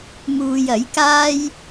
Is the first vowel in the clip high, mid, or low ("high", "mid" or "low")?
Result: high